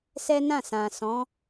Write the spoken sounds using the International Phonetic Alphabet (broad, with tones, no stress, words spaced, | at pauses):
sɛ˦nã˦˨sã˨ sɔ̃˨˦